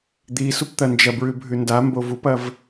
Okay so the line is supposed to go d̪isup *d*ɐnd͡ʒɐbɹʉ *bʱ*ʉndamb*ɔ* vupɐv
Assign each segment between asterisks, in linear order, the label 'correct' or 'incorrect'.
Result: incorrect: t̪, correct, incorrect: o

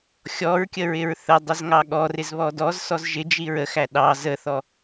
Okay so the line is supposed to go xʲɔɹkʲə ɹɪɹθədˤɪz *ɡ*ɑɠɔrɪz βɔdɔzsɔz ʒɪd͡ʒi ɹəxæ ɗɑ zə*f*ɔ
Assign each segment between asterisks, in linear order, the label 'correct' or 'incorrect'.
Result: incorrect: ŋ, incorrect: θ

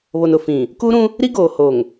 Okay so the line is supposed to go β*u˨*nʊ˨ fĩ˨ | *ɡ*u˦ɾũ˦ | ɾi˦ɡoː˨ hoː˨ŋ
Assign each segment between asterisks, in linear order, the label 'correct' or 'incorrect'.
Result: incorrect: o˨, incorrect: k

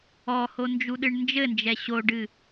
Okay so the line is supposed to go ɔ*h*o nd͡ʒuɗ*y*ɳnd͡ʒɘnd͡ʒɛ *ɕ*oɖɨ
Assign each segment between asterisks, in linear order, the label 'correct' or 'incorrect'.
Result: correct, incorrect: ɨ, correct

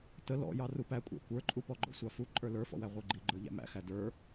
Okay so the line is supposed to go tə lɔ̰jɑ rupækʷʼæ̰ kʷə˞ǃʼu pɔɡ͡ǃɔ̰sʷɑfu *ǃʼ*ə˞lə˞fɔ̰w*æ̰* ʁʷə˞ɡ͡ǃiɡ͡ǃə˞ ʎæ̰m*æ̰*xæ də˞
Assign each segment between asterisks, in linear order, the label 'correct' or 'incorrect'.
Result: correct, incorrect: æ, correct

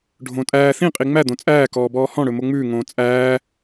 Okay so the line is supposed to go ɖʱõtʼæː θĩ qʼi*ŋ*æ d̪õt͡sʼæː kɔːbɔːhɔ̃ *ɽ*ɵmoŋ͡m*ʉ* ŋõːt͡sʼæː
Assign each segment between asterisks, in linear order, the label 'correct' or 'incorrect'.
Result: incorrect: ŋ͡m, correct, incorrect: ʉː

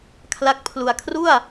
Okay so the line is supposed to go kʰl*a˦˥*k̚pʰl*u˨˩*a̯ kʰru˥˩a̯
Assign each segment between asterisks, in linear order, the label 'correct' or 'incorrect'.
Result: correct, incorrect: u˧

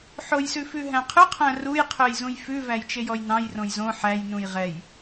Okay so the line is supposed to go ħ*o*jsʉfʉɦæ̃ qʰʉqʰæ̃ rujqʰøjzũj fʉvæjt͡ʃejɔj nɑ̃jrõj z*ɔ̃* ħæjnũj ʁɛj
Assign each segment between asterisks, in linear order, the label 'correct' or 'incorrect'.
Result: correct, incorrect: õ

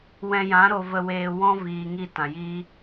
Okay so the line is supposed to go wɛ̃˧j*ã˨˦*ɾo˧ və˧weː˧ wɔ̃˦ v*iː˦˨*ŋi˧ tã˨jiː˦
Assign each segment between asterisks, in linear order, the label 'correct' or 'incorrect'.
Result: correct, incorrect: iː˨

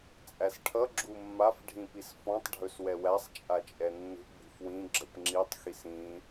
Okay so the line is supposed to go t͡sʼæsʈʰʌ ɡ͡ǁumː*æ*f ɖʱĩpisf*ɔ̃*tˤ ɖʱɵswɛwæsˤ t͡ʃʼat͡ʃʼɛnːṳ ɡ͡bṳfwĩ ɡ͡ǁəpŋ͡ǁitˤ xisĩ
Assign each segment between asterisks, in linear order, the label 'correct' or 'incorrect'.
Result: incorrect: a, correct

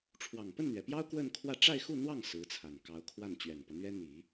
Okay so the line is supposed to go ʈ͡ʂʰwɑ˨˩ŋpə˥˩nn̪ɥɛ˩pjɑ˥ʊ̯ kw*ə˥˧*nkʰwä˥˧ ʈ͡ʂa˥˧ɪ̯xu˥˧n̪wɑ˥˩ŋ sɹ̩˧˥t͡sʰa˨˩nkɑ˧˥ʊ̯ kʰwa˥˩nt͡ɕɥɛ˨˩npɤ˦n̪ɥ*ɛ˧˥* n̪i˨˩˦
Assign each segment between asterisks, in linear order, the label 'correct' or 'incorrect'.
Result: correct, incorrect: ɛ˥

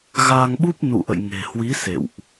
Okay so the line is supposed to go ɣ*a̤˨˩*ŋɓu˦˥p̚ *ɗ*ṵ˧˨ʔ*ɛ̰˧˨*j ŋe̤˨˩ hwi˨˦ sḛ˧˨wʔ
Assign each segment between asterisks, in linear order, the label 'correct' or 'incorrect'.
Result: incorrect: a˧, incorrect: n, incorrect: ə̰˧˨

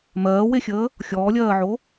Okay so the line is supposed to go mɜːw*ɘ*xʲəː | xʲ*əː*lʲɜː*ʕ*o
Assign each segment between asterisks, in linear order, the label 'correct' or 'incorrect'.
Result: incorrect: e, incorrect: ɔː, correct

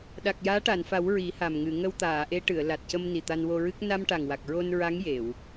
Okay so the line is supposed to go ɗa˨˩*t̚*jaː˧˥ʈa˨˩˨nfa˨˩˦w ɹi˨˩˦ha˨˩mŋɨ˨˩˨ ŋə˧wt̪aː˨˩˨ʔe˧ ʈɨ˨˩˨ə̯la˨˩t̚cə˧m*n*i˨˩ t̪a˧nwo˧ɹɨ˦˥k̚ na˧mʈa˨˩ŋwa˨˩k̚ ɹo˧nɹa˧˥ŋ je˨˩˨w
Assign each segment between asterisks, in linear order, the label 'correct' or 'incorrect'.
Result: incorrect: k̚, correct

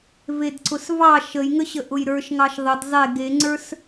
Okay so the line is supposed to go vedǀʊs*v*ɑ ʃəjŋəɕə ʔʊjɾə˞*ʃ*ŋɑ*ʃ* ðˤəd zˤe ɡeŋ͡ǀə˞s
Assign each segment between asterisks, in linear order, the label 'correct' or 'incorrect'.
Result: correct, correct, correct

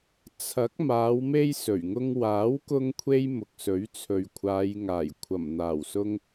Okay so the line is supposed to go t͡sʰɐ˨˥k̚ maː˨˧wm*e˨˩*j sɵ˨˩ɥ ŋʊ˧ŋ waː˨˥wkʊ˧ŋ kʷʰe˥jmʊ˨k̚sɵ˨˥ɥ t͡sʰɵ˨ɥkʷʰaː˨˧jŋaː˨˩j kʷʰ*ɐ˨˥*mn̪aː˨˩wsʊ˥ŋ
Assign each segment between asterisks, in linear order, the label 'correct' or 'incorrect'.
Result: incorrect: e˧, incorrect: ɐ˨˩

